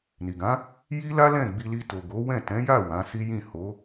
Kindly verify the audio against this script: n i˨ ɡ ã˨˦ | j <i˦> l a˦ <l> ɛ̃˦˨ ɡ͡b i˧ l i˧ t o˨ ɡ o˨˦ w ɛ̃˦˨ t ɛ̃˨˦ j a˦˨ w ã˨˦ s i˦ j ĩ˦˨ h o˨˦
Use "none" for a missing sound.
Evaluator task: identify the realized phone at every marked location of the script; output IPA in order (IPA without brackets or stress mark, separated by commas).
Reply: i˦, l